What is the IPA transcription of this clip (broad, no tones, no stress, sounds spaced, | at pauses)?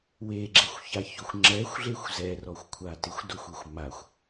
w e ɡ͡ǁ e xʷ ç a ç o xʷ ŋ͡ǁ ɛ xʷ ɮ e xʷ z ɛ r ɔ xʷ kʷʰ a t ɪ xʷ d o xʷ e xʷ m a xʷ